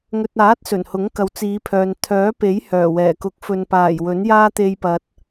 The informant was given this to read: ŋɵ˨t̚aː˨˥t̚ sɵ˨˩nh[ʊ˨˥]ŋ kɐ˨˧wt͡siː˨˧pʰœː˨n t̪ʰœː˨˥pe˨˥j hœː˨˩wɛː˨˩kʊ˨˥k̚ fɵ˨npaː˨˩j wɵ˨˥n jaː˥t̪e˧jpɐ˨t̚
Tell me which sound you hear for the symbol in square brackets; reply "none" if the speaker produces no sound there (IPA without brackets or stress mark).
ʊ˨˥